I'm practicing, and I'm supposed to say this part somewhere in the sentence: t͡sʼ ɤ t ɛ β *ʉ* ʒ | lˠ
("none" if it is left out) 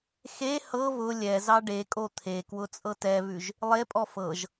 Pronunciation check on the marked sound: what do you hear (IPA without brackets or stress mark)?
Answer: ʉ